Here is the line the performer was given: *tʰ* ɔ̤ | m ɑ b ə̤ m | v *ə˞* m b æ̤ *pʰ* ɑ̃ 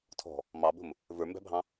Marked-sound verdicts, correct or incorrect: correct, correct, incorrect

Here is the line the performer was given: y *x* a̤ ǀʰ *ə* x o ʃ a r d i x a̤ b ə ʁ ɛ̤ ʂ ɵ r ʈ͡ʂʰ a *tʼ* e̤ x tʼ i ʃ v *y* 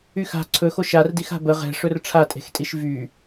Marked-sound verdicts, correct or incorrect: correct, incorrect, correct, correct

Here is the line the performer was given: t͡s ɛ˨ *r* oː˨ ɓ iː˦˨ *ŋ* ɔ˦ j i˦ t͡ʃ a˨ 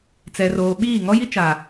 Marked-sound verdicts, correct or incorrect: correct, correct

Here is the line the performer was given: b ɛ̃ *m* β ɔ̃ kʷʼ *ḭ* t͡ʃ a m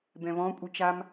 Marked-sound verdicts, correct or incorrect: incorrect, incorrect

